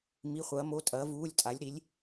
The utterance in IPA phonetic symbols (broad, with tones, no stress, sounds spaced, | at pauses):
m i˩˧˩ χʷ ɐː˩˧ m o˩˧˩ tʼ ɐː˩˧ v uː˩˧˩ lʲ tʼ a˩˧ lʲ ɾ i˩˧ lʲ